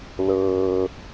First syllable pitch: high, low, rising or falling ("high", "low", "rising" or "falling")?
low